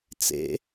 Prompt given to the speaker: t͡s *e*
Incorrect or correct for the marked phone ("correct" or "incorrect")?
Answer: incorrect